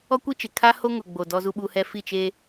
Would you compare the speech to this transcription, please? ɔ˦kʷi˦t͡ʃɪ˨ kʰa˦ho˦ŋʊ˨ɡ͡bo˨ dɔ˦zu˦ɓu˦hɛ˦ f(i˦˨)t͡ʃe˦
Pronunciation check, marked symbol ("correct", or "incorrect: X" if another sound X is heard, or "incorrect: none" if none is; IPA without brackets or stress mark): correct